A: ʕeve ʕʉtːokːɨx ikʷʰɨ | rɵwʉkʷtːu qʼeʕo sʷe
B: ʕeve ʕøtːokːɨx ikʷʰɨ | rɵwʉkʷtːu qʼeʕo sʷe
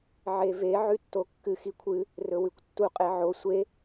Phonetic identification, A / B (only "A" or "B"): A